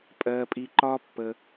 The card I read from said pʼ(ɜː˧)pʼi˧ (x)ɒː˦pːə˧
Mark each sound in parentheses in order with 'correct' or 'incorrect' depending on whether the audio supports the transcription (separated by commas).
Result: correct, incorrect